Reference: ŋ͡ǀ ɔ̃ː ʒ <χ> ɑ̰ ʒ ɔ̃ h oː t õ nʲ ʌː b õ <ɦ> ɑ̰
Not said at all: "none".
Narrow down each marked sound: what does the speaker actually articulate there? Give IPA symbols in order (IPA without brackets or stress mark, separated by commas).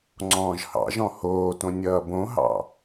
h, ɦ